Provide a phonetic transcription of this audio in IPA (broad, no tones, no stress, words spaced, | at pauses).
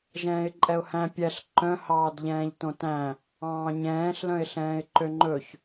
ʒɛ̃ːɪ̯ǃʼɛʊ̯hæ̃ pʲɛɬ ǃœ̃hɑːdʎɛ̃ːʎ tõtæ̃ | ɑ̃ːɲɛ̃ːɬlœ̃ɪ̯ɬɛ̃ːɪ̯ ǃøŋ͡ǃɵç